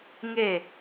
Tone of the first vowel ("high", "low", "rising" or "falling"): falling